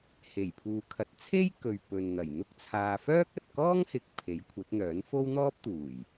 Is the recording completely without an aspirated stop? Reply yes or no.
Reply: no